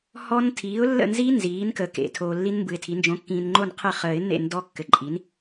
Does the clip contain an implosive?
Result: no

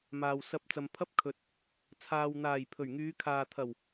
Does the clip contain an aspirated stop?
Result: yes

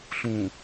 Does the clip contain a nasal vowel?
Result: yes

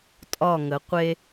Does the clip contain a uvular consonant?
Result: yes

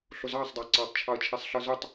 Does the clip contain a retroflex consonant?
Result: no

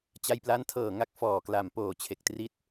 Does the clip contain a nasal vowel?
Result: no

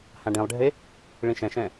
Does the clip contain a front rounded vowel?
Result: no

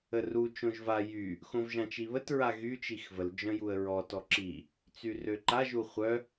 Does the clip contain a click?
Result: yes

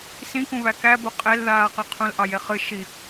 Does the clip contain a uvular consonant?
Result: yes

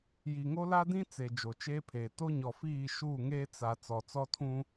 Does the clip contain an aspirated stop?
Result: yes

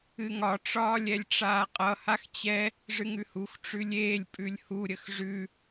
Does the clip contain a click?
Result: no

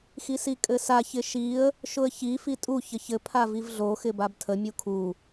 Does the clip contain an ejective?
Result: yes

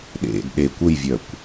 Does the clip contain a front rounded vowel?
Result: yes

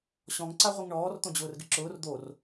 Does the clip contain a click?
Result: yes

